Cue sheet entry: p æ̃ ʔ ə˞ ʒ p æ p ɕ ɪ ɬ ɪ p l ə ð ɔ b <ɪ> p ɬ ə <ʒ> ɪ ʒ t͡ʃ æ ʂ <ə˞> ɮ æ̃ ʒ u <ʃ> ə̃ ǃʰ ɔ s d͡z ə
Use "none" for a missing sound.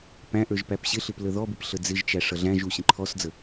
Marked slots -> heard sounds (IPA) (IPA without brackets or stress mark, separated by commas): ɪ, d͡z, ʌ, ɕ